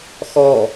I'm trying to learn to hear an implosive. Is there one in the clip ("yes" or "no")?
no